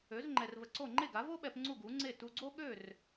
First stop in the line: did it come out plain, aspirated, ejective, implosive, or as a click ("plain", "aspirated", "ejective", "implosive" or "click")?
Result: click